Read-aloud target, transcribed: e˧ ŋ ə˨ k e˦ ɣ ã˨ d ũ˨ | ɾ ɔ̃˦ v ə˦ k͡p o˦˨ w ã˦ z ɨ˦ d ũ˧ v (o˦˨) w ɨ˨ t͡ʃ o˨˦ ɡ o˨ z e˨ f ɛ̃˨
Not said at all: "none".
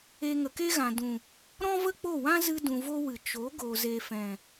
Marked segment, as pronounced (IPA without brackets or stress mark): o˦